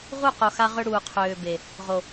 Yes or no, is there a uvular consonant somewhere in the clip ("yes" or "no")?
yes